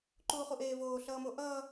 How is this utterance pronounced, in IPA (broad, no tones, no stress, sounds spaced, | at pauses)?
ǃ uː χ u ʔ eː v oː ɬ ʌː m o ʔ ʌː